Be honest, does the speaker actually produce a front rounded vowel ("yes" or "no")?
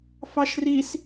no